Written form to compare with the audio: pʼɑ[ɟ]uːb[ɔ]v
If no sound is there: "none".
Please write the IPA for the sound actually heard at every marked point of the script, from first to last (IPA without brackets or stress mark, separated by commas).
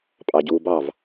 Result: ɟ, ɑ